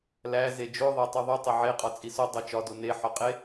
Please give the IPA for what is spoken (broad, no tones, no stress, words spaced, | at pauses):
læze d͡ʒo ðˤetˤuðˤu tˤeʕe qʼɒt͡sʼiso dˤot͡ʃɒdo neħɒqʼe